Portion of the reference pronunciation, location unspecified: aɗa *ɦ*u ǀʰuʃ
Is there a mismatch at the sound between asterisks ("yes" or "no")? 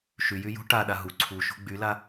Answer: no